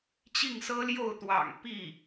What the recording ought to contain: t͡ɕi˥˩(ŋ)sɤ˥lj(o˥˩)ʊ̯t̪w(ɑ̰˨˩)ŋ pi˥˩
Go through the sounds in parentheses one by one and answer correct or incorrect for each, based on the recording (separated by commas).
correct, correct, correct